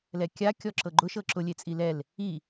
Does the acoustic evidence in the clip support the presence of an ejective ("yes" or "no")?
yes